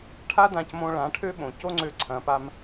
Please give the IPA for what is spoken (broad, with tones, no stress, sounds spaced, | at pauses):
ʈʰ a˦ d ã˧ c m õ˧ ɭ ã˨˦ ʈʰ ø˦ ɓ õ˨ c o˦ ŋ͡ǀ ø˧ ǀʰ ɐ̃˨ p a˧ m